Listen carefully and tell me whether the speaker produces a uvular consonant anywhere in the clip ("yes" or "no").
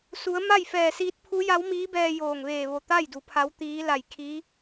no